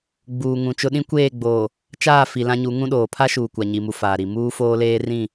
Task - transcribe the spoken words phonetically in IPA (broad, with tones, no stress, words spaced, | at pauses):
ɡ͡buː˨ŋũ˨t͡ʃʊ˦ ɗĩ˦kʷeː˦˨ɡ͡boː˨ | t͡ʃaː˦˨fi˨ lã˦ɲu˨˦ ŋũ˦ɗoː˨ pʰa˦ʃuː˨ kʷa˨ɲi˨mu˨ faː˨ɾi˨ muː˦foː˦leː˦ rĩ˦˨